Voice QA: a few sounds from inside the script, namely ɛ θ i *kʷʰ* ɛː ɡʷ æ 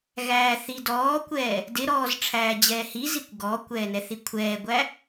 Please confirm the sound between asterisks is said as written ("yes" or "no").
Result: yes